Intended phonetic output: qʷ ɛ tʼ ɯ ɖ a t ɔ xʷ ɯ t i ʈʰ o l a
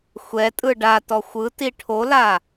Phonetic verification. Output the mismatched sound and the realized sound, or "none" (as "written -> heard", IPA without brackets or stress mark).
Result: qʷ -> xʷ